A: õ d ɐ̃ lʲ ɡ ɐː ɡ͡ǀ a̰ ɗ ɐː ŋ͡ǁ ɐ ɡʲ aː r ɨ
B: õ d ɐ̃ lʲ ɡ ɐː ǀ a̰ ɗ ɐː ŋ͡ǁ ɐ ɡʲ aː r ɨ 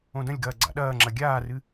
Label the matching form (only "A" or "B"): A